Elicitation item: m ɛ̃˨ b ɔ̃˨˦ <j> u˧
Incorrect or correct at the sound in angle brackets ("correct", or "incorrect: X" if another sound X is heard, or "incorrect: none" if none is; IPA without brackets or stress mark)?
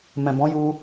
correct